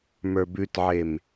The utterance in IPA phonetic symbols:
m ə˞ b ʉ t ʕ e m

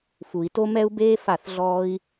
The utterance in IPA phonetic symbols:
f u˨ i̯ t o˧ m ɛ˧ u̯ b eː˧ f a˦˨ θ ɮ ɔː˦ i̯

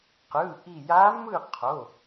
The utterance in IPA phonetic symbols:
q ɯ˩˧˩ ʔ i˧˩ j a˧˥ m ɯ˥˨ qʰ o˩˧˩

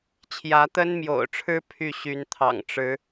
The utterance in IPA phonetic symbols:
t͡ɕʰ j ä˨˦ t̪ ə˦ n m j o̰˨˩ ʊ̯ ʈ͡ʂʰ ɻ̩˦ pʰ y˥˨ ɕ y˨˦ n t̪ʰ ɑ̰˨˩ ŋ ʈ͡ʂ ɻ̩˨˦

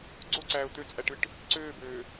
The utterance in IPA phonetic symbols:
ɡ͡ǀ o ǀ æː ʊ̯ t̪ ø t͡sʼ æ ʈ ɯ ʈ | ǀ øː b øː

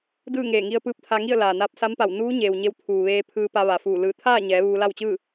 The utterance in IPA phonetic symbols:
d ɯː˥˨ ŋ eː˧˩ ŋ i˧ ə̯ p ɯː˧˥ p̚ t̪ʰ a˧ ŋ i˥˨ ə̯ l aː˩ n aː˧ p̚ s a˧˥ m p a˧˩ w n uː˧˥ ɲ eː˩ w ɲ e˧ w t̪ʰ uː˩ ʋ eː˧ pʰ ɯː˧ p a˧ ʋ a˩ f uː˧˩ l ɯː˧˩ t̪ʰ aː˥˨ ɲ ɛː˩˧ ʋ uː˧ l a˥˨ w t͡ɕ ɯː˥˨

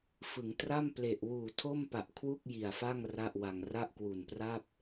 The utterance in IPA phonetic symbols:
f ɯ˩˦ ŋ t r a˥˩ m p l e˨˩ ʔ w uː˨˩ tʰ o˥˩ m p a˨˩ ʔ kʰ w u˥˩ k̚ j i˨˩ a̯ f a˥˩ ŋ r a˥˩ ʔ w a˧ ŋ r a˥˩ ʔ k w u˨˩ n p r a˥˩ p̚

